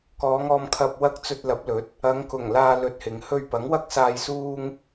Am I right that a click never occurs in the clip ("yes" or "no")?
yes